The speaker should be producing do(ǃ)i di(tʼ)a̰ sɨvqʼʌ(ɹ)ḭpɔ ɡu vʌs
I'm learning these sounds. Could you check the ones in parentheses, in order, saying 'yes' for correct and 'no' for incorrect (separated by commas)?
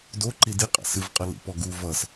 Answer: yes, no, no